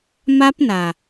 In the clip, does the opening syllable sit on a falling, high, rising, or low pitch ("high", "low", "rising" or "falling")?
high